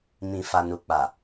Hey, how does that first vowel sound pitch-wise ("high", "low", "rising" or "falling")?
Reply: low